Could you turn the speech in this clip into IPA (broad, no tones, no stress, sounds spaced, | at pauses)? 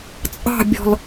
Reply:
t͡sʼ ɑ̤ bʲ ɔ̤ l